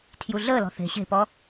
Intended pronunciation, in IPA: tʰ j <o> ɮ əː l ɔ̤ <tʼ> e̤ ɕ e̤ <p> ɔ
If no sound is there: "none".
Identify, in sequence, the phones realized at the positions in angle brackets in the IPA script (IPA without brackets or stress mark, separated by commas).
u, θ, p